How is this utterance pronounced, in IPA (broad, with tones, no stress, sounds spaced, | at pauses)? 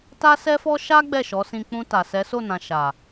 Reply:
t a˦ s ɛ˦ f ɔ˦ ʃ a˦ ɡ͡b ɛ˦˨ ʃ ɔ˨˦ s ĩ˧ k͡p ũ˧ t a˨ s ɛ˨˦ s o˦˨ n ã˨ ʃ a˨